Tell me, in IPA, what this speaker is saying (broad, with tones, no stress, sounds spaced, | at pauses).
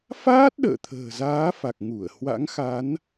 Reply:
f aː˦˥ t̚ ɗ ə̰ː˧˨ t̪ʰ ə̤ː˨˩ z aː˨˦ f a˨˩ k̚ ŋ u˧˩ ə̯ h w a̰˧˥ ŋ x a˨˦ n